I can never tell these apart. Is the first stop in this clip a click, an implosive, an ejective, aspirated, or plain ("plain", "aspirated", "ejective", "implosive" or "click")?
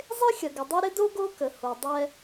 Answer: plain